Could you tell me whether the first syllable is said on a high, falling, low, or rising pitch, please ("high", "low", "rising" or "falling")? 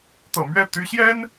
low